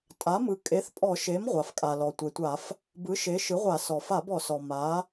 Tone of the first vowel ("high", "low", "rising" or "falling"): rising